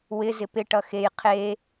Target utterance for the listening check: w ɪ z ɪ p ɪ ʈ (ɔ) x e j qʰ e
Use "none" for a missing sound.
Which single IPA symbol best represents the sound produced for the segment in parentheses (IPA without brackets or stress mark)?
ʌ